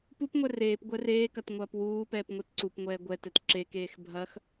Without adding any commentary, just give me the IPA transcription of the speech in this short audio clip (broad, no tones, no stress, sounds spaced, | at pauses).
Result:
p u p ŋʷ ɛ r eː p ɡʷ ɛ r eː k ɐ t ŋʷ ɐː p w uː p ɛː p ŋʷ e t ǀ u p ŋʷ ɛː ɡʷ ɛ t ɛ t ǁ e k eː x bʱ ɐ x